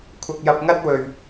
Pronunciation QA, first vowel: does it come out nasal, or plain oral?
oral